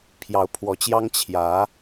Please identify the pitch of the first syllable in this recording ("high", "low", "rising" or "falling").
rising